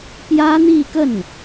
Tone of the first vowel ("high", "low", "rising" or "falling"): high